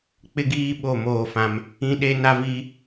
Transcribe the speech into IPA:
k͡p ɪ˦ ɡ iː˦ ɓ o˦˨ m oː˦˨ f ã˦ m | ĩ˦ ɗ e˦ n a˦ v i˦

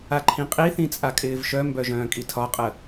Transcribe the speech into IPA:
a ǃʰ ĩ qʼ i θ ĩ t͡sʼ a kʼ ɪː v ʃ œ m b œ ʒ œ̃ː kʼ i tʰ ɒ qʼ ə

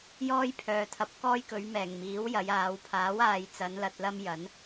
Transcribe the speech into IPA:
j ɔː˥ j pʰ œː˨ t̪ʰ ɐ˨˥ p̚ k ɔː˥ j k ɵ˨˧ ɥ m ɛː˨˩ ŋ m iː˨˥ w j ɐ˨˧ j aː˨˧ w pʰ aː˨˥ w aː˨ j t͡s ɐ˨˧ n l ɐ˧ t̚ l ɐ˥ m j ɐ˨˥ n

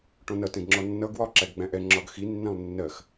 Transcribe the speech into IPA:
ʈ ɔ̃ n ʌ t ɛ̃ ɡ ŋ͡ǁ ɔ nː ʌ ɡ w ɒ ǁ æ ɡ ɡ͡b æ̃ ʔ ɛ ŋ͡ǁ ɒ ɡ x i nː æ̃ lˠ nː ɜ x

